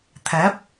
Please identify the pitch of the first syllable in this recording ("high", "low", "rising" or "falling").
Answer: rising